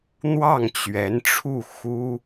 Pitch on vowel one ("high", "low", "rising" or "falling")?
falling